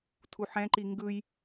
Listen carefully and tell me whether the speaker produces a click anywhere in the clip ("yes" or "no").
yes